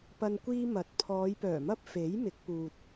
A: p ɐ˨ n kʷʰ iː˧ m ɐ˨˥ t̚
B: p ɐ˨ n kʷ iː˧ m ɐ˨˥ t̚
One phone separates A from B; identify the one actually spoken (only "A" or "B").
B